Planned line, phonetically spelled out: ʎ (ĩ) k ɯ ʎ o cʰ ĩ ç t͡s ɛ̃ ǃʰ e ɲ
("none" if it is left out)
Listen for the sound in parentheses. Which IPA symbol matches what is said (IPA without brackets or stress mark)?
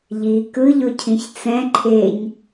i